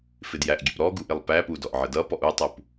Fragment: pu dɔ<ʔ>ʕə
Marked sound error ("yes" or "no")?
no